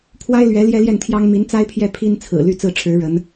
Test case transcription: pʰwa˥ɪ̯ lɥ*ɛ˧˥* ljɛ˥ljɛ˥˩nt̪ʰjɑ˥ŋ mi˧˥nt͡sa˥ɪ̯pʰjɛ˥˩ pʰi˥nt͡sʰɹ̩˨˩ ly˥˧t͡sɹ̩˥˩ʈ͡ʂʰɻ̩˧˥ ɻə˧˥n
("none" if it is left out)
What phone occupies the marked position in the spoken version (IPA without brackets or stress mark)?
ɛ˧˥